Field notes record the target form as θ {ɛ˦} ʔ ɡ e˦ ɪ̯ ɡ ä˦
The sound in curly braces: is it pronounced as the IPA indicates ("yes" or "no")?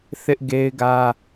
no